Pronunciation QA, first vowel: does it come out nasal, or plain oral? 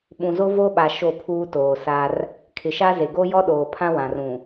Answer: nasal